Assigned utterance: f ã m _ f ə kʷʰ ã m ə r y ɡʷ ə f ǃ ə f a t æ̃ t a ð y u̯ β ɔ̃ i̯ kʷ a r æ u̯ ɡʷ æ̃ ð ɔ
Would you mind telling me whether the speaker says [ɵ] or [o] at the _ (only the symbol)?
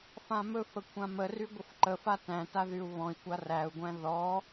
ɵ